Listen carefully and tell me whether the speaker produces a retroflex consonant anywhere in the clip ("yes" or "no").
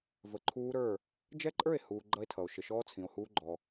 no